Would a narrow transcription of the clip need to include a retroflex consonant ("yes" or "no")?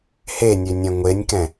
no